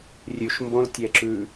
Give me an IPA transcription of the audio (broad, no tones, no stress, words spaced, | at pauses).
rʲʉʃ mbõltʲɛǁʉ